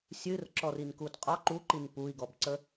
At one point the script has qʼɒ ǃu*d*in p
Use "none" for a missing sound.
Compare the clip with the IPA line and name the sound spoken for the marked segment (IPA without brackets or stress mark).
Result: ǃ